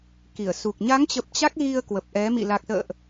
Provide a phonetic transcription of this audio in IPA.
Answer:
k i˧˩ ə̯ s u˨˩ k̚ ɲ a˨˦ ŋ t͡ɕ ə˨˩ p̚ t͡ɕ a˦˥ k̚ ɣ i˧ ə̯ k w ə˨˩ p̚ ʔ ɛ˨˦ m ḭ˧˨ l a˨˩ k̚ s ə̰ː˧˨ ʔ

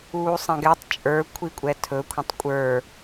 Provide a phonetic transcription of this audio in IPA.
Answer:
uː sˤ ɛ̃ ɡ ɛ tˤ t͡ʃʼ ə˞ kʷʰ i kʷʼ ɛ tʰ ɵ kʷʰ ə̃ tˤ kʷʼ ə˞

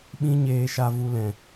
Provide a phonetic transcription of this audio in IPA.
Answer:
ɓ ĩ˦ ɲ eː˧ ʃ a˧ v u˧ l ɛ̃˨

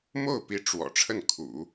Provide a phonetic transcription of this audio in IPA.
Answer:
m o˥˩ ʊ̯ p i˧˥ ʈ͡ʂ w ɔ̰˨˩ ʈ͡ʂʰ ə˥˩ n kʰ ṵ˨˩˦

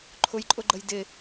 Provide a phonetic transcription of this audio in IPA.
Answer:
ǃʰ ʊ j ǃʼ ʊ ɡ͡ǃ ə j d ɪ

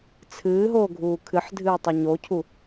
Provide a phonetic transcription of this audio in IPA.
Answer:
t͡sʰ ɨː ɦ oː ɡʱ uː kʰ ɨ ħ dʱ ɨː tˤ ɵ ɲ o cʰ u

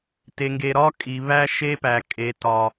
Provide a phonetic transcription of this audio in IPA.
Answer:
t e˧ ŋ ɡ e˧ ɾ ɒ˦ kʼ i˧ β æ˦ ʃ e˦ p æ˧ kʼ e˧ t ɒ˧

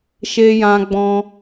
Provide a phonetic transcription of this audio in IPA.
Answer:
ʃ e˦ j ã˦ ɡ͡b ɔ̃˦

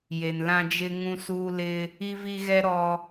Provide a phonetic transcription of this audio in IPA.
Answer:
j e˨ n l ã˦ d͡ʒ ɪ˦ ŋ ũ˦ s uː˦ l ɪ˦ | i˦ v i˦ ɣ ɛ˦ ɾ ɔ˦

